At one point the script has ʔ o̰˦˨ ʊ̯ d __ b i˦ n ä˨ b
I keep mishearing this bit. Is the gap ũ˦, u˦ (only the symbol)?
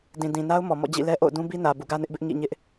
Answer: ũ˦